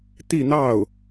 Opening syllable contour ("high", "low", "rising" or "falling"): falling